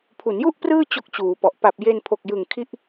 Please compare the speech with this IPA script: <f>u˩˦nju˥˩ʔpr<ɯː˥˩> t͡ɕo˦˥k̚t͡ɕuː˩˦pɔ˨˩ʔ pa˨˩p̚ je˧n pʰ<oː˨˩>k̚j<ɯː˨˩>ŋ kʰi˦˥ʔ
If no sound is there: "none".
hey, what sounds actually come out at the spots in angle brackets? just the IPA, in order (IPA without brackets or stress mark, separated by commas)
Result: pʰ, ɯː˥˩, o˨˩, ɯ˨˩